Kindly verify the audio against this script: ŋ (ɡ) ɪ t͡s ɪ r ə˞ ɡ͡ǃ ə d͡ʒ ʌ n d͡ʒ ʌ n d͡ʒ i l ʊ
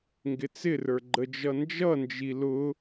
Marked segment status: correct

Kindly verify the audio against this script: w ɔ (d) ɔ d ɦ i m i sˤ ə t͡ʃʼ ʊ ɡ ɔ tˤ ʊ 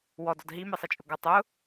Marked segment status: correct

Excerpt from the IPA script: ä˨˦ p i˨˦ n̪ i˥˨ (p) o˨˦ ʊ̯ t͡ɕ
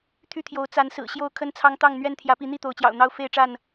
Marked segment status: incorrect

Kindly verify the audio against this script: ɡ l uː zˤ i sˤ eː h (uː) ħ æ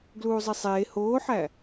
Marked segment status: incorrect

